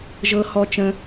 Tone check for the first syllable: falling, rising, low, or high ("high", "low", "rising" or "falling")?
low